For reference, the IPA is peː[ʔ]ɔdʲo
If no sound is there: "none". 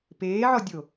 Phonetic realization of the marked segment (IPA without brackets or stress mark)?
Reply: ʕ